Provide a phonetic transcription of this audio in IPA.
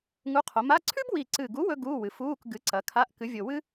ŋ u˨˥ qʰ o˩˧ m a˧˥˧ ǀʰ ʉ˥ b w i˨˩ ǀ ɨ˨˩ ɡ u˨˥ w ɵ˥ ɡ uː˧˥˧ w ɨ˩˧ f uː˧˥˧ k ɡ ɨ˨˥ ǀ ɐ˩˧ kʰ a˧˥˧ ʔ k ɨ˨˥ vʲ o˨˩ w ɨ˥

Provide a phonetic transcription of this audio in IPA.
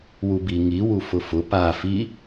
w u b i ŋ i w u f ʊ f ʊ p a f i

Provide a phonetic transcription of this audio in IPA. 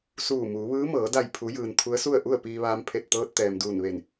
s uː˧˩ m uː˩˧ ʋ ɯː˧˥ m ɤː˩˧ d a˧˩ j pʰ u˩˧ j ɯː˩ n t̪ʰ u˧˥ ə̯ s u˥˨ ə̯ ʔ u˥˨ ə̯ p iː˧ ʋ aː˧ m pʰ e˧˩ t̚ t̪ ɤː˧ t̚ t̪ ɛː˩ m d uː˧˩ n ʋ e˧˩ n

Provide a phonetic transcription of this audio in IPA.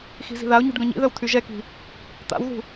x i̤ z i̤ ð a ʊ̯ ɲ ṳ ɖ ɡ œ̃ ɲ ḭ ð œ w t̪ʰ y ʒ ɛ k i̤ | t̪ a̰ w ð ṳ

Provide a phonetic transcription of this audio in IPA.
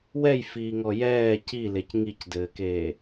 w ɛ j f iː ŋ ɔ j ɛː c i l e c ŋ i c d ɘː k eː

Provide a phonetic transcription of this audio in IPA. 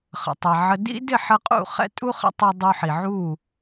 χ ə̰˨ tˤ e˨ ʕ ə˧ d ḭ˦ d ɪ˦˨ ħ ə˧ qʼ ṵ˦˨ χ ɛ̰˦ tʼ u˦ χ ə̰˦ tˤ u˧ dˤ u˧ ħ i˨ ʕ u˦˨

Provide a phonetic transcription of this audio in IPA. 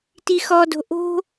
t i x ɔ d o̤ ʔ o̤

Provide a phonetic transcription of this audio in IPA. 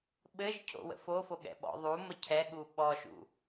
ɓ ɘ ʒ cʰ o̰ w ə̰ f o f o ɠ ɛ̰ ɓ ɔ̰ ðˤ u m ə cʰ ɛ ɠ u ɓ ɔ ʃ ṵ

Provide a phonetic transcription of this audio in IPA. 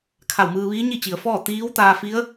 kʰ a˧˩ w m ɯː˧ ʋ iː˧˥ ɲ i˥˨ t͡ɕ i˩ ə̯ f ɔː˥˨ t̪ iː˧˥ w t̪ aː˧ f i˧˥ ə̯

